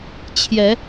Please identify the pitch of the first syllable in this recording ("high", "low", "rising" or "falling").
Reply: rising